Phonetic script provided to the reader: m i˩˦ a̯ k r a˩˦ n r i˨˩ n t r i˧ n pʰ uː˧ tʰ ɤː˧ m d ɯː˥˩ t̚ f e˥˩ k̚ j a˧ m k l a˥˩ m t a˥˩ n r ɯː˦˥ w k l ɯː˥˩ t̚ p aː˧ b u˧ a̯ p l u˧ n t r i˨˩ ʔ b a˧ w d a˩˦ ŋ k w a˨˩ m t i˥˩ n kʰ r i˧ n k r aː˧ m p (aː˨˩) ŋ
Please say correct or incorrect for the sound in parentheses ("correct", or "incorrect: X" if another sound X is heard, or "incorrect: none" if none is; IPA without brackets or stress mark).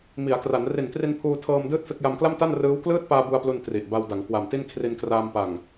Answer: incorrect: a˨˩